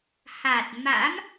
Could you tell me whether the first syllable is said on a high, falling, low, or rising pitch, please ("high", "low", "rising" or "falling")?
low